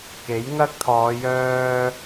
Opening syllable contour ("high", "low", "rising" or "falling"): rising